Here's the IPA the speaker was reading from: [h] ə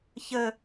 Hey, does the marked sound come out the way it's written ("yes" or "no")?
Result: no